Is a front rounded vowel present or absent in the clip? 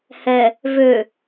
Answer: present